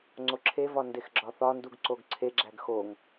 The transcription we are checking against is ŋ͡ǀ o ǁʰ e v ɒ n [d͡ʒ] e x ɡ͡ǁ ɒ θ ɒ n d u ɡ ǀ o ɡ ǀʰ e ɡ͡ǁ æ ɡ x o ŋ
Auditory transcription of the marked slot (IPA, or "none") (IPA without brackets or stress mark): d